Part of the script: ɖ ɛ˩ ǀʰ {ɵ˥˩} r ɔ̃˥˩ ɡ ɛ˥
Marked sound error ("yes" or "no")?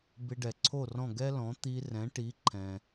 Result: yes